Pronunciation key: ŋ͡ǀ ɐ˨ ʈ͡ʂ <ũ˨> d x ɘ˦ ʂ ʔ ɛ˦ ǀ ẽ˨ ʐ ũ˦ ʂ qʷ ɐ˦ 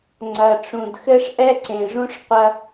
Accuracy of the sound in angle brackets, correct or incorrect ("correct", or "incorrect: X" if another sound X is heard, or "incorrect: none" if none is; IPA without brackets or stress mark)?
correct